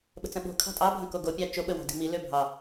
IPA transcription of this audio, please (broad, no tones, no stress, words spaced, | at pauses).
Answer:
ɓə̤t͡sə̃ɓo̤ kʰɑ̤tʼɑbʱə̃ koɡopʲɑ t͡ʃoɓəwɑ̤di̤ mi løbʱɑ